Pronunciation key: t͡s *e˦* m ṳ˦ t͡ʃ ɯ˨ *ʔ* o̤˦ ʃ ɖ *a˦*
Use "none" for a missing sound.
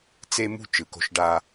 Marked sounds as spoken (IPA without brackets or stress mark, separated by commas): e˦, k, a˦